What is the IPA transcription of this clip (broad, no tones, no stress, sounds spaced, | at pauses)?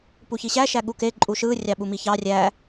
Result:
p u ç i ɕ æ ʃ æ ɠ u k e ǃʼ u ʃ ɯ rʲ ɑ ɓ u m i ç ɑ rʲ æ